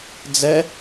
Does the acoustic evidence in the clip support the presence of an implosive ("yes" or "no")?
no